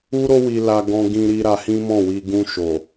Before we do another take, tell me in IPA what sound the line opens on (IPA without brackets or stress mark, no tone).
u